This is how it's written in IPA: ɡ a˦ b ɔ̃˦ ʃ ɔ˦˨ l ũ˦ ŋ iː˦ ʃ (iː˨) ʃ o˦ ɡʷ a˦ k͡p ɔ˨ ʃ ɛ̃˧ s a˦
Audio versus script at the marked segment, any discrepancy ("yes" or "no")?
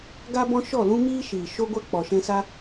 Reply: no